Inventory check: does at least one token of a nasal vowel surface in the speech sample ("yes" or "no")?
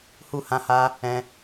yes